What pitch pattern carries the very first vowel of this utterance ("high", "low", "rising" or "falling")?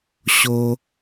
high